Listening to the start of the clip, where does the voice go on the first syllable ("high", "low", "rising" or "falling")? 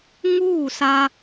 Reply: falling